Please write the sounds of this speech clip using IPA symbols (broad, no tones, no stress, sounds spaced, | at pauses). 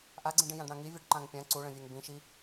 ʔ a ɡ͡ǀ ĩ ɖ ĩ j ã ɖ ɽ ã ŋ i vʲ ɛ ɖ ǃ ã ŋ pʲ ã ǀ u ɭ ə̃ vʲ ɛ ŋ b ĩ ʃ i